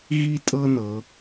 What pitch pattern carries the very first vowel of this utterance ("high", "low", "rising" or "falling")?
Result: high